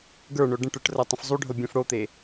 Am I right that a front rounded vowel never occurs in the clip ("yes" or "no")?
no